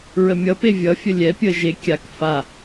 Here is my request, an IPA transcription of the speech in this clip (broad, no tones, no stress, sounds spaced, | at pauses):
ɹ ə mʲ ʌ p e vʲ ʌ fʲ ə lʲ ɛ pʲ ə ʒ e kʲ a k f a